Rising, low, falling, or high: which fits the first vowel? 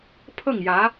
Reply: falling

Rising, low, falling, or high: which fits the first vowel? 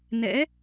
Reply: rising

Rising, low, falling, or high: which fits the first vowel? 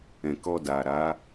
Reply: low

